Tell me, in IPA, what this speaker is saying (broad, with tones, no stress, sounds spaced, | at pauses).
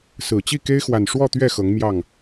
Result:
s ɹ̩˨˩ t͡ɕ i˥˨ k e˦ ɪ̯ x w a˨˩ n ʂ w ɔ˥˨ t̪ ɥ ɛ˥˨ x ɤ˨˦ ŋ m j ɑ˥˨ ŋ